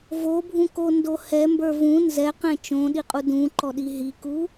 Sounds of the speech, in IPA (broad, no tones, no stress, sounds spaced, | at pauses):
v o bʱ ũ k o n d o h ɛ m b ə˞ v ũ n z ɛ q ɛ̃ t͡ʃ õ ɗ i qʼ u d ũ ǃ ɔ ɗ i ɦ i k u